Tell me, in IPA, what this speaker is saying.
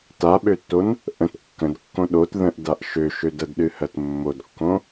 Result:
t a ɓ ø tː o n | ʔ ə̃ t kː ə̃ d kː õ ɗ o t ð ə̃ ʔ d a ʔ ʃ ø ʃ ø d ɜ d ɗ ɨ h ɜ t mː o d kː õ

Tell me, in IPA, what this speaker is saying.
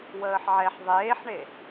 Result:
w əː ħ ʕ ɛ ħ ðˤ eː ħ ɳ e

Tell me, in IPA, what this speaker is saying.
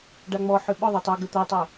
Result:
ɖ a ŋ͡m ɔ ħ ʏ ɓ ʊ ðˤ ø tˤ o ɡ ə t̪ ɐ tˤ ɐ

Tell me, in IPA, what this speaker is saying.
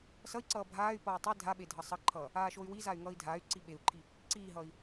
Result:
s ʌ i̯ ǀ ʌː bʱ aː y̯ p ʌː tˤ i dʱ a ɓ e dʱ ʌ sˤ ʌ ǃʰ ʌː | aː ʃ o y̯ w i z a y̯ ŋ ʌː i̯ dʱ aː y̯ ǀ i ɓ e u̯ ǃʰ i | ǀ iː ɦ ʌː i̯

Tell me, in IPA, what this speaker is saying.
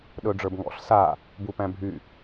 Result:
ɗ ɵ ɖ͡ʐ ə˞ b ŋ ɔ̰ ɬ s a | b u p æ̃ bʱ y

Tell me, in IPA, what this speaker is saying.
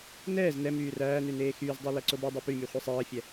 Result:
n ɛː z n ɛ m yː r æː n ʉ n eː x yː z dˤ ɑ l æ ǀ o b u dˤ y p y mʲ ʉ χʷ i sˤ ɛː fʲ ɛ

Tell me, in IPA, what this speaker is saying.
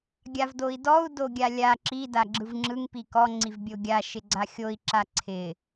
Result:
ɡʲ a v d o i̯ d ɔ u̯ d o ɡʲ a lʲ a ǁ i d a ɡ͡ǁ ɯ v ŋ͡ǁ ɯ ŋ p i k ɔ ŋ͡ǀ i v bʲ o ɡʲ a ʃ ɪ ɡ͡ǀ a xʲ o i̯ ǁ a ǀʰ ɪ

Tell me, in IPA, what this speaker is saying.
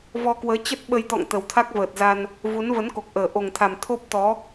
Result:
v ɔ˧ k w əː˨˦ t͡ɕ ə˦˥ t̚ ɓ ə˧ j t̪ ɔ̰˧˨ ŋ t̪ ə˨˩ w t̪ʰ a˦˥ k̚ v əː˨˩ t̚ z a˧ n | v u˨˦ n v ə˨˦ n k o˨˩ k̚ ʔ əː˨˩ ʔ o˨˩ ŋ t̪ʰ a˨˩ m t̪ʰ o˦˥ p̚ t̪ ɔ˨˦

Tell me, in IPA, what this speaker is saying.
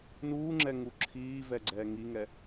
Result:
n uː ŋ͡ǁ ɛ ŋ u ǁʰ iː v ɛ ɡ͡ǀ ɛː ŋ i ŋ ɛ

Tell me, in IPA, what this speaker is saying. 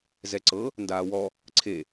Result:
z ɛ ǀ ɤ | n d aː w ɔ | ǀʰ e

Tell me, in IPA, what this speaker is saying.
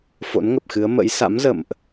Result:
f o̰˧˥ n ŋ ə˨˩ p̚ x ɨ˨˦ ə̯ m ə̰˧˥ j s a̰˧˥ m z ə̰˧˨ m ʔ

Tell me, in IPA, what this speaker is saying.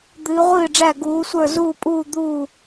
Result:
d̪ ɨː˩˧ ʁʷ ɨː˧˩ ɖ͡ʐ æ˧˩ ɡ uː˩˧ sʷ ə˞˧˩ z uː˧˩ pʼ uː˧˩ d̪ uː˧˩

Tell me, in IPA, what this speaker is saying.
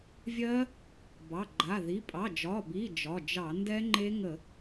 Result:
vʲ ɜ˦˥ | b ɑ˩˧˩ ɡ͡ǃ a˩˧˩ ð i˩˧˩ pʼ ɑ˩˧˩ d͡ʒ ɒ˩˧˩ b i˩˧˩ d͡ʒ ɒ˩˧˩ d͡ʒ ɑ˧˩˧ n d ɛ˦˥ ŋ͡ǃ e˦˥ ŋ ə˧˩˧

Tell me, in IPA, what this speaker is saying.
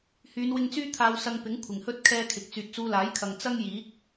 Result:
h yː˨˧ n w ɪ˧ ŋ t͡s yː˥ t̪ʰ aː˧ w s ɐ˧ ŋ p ɪ˨˥ ŋ kʷʰ ɪ˨˩ ŋ h ɵ˥ t̚ kʰ ɛː˧ kʰ ɪ˨˥ k̚ t͡s yː˨ t̚ t͡s uː˧ l aː˨˥ j kʰ ɐ˨ ŋ t͡s ɐ˥ ŋ j iː˨˥ k̚

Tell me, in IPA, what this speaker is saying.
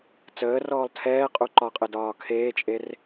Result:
t͡s əː r ɔː lˠ tʰ ɛː qʼ u ǃ ɒ qʼ ɘ d ɒː kʰ eː t͡ʃʼ e r

